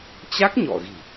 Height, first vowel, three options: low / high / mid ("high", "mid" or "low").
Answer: low